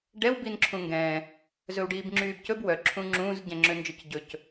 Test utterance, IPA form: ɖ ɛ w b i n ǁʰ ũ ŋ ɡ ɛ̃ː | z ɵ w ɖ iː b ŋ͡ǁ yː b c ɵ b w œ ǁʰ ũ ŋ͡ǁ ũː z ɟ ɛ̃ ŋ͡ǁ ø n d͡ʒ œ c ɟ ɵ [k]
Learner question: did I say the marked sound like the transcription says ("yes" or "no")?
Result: no